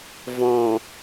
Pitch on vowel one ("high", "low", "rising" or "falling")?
low